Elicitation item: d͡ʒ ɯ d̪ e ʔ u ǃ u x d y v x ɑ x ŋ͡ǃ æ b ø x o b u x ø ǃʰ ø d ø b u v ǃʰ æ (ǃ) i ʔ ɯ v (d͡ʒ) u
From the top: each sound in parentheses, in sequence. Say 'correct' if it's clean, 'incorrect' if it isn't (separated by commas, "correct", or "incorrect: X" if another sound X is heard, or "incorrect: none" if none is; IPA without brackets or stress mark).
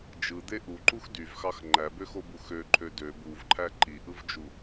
correct, correct